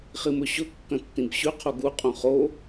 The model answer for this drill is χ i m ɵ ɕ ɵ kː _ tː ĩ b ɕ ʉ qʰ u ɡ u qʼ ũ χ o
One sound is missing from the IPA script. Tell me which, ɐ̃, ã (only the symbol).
ɐ̃